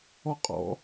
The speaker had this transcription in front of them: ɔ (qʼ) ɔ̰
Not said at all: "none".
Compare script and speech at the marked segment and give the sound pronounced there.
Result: qʼ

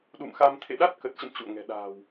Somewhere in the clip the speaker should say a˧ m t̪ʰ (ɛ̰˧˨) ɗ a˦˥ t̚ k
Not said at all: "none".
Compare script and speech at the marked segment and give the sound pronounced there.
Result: ḛ˧˨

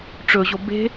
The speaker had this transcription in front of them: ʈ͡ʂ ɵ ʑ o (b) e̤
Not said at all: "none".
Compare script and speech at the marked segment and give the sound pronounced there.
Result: b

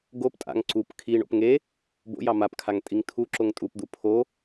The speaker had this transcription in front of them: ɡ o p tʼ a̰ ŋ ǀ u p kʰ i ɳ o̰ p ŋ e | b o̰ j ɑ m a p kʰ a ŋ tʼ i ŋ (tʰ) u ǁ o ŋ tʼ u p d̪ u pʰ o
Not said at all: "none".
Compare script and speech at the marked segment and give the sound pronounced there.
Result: tʰ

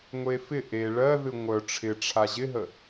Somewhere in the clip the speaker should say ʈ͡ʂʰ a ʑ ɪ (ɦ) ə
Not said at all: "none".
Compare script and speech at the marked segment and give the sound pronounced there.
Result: ɦ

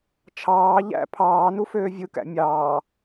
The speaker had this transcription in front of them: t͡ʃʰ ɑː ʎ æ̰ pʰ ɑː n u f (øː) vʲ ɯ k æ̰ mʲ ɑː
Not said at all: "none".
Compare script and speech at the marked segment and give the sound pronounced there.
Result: øː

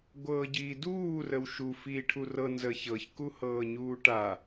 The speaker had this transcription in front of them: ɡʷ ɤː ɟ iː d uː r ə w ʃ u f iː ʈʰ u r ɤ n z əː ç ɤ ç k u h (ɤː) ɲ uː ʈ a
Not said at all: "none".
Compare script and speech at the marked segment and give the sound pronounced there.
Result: ɤː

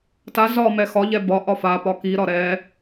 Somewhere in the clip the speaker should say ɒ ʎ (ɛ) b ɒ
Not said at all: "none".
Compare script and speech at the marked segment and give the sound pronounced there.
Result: ɛ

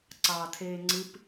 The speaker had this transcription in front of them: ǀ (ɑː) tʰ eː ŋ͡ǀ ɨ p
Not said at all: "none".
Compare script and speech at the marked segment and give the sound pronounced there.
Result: ɑː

